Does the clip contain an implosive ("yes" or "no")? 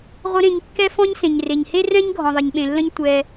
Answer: yes